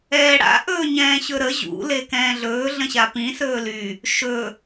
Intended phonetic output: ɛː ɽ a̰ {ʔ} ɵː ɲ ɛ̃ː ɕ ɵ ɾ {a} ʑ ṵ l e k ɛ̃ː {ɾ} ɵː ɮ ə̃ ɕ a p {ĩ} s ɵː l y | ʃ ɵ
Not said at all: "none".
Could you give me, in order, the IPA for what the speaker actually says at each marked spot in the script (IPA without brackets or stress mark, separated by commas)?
ʔ, ə, ɮ, ĩ